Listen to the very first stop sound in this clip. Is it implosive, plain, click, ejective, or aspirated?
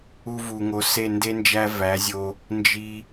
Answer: plain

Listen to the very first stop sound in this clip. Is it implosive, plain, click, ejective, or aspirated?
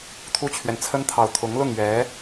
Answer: aspirated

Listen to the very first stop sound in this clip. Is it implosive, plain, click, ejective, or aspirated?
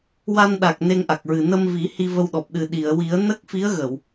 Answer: implosive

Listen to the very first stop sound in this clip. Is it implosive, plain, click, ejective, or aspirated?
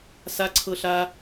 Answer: click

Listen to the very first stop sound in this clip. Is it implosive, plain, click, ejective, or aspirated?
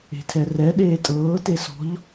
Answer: aspirated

